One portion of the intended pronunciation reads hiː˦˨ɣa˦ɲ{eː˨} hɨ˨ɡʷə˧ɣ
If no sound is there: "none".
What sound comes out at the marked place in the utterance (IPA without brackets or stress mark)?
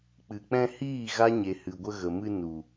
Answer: e˨